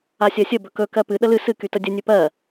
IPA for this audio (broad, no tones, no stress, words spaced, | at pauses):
asʲɜsʲə bɵkɵ kɜpɨ ɗəlɨ sɨ kytədʲə nʲɵpɜ